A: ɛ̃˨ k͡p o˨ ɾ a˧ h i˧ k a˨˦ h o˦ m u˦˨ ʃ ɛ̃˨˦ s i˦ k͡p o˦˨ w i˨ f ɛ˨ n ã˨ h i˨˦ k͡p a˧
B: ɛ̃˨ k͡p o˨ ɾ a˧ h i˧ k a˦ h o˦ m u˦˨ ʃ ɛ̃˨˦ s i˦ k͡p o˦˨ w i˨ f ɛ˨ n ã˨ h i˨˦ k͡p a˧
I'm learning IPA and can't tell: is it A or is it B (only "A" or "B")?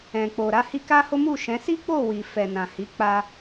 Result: B